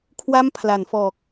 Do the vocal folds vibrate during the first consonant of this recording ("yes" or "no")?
no